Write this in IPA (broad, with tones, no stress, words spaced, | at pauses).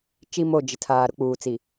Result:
t͡ʃi˨ mo˦˨d͡ʒɪ˨tʰaː˨ ɾʊ˦k͡puː˨t͡si˨